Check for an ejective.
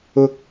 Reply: absent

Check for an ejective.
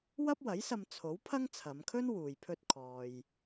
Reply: absent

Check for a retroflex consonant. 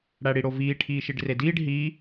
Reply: present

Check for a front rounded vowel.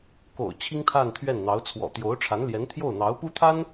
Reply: absent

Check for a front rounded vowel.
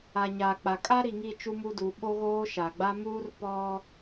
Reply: absent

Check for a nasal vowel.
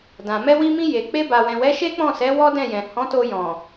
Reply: present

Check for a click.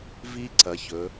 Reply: present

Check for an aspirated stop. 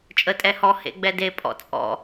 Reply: absent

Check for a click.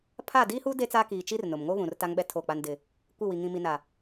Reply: absent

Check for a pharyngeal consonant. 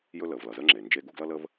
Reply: absent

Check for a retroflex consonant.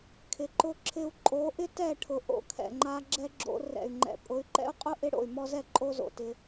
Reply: present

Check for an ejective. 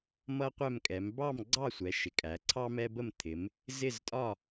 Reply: present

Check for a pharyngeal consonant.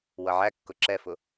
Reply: present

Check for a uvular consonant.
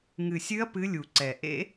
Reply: absent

